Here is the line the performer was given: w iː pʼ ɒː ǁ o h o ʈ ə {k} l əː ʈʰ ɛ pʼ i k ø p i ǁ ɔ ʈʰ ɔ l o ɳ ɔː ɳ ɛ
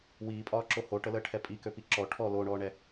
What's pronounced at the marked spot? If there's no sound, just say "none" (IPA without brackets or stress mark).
none